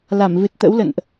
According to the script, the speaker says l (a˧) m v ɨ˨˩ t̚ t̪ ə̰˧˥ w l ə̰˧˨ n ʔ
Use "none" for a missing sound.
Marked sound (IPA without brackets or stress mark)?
a˧˩